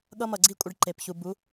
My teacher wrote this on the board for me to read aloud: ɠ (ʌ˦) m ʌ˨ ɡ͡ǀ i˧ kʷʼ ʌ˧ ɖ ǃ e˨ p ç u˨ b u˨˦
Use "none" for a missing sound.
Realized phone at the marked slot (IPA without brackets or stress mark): ʌ˧